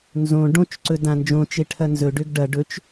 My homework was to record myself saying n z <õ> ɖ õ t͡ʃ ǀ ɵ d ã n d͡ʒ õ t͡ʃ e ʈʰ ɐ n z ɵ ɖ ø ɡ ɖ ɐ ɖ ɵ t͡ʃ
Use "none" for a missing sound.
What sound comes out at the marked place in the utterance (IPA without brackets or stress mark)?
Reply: õ